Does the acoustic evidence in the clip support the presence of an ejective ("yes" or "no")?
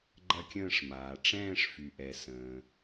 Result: no